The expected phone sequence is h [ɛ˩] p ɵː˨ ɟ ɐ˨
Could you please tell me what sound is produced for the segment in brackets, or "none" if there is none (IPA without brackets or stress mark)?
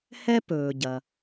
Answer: ɛ˥